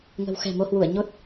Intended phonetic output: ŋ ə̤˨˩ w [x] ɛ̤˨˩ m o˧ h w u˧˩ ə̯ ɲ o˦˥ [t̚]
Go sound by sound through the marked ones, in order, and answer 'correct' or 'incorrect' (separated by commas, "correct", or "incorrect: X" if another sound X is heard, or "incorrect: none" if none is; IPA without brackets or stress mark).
correct, correct